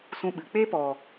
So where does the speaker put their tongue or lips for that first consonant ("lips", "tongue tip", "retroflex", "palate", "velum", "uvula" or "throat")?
tongue tip